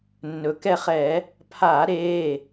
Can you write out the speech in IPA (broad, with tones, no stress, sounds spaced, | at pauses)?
nː ɵ˩ k ɛ˦˨ χ ɛ˧˩˧ | pʰ aː˧˩˧ ɾ eː˩˧˩